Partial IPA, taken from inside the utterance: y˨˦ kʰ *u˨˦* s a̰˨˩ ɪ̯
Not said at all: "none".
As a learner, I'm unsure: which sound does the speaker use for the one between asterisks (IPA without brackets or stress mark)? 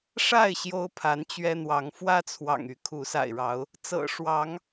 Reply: u˨˦